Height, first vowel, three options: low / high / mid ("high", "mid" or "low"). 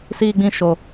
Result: high